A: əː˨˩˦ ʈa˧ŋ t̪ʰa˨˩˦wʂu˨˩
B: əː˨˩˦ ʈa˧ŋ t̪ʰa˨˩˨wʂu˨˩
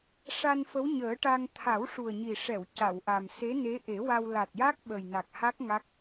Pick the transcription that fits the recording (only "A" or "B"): A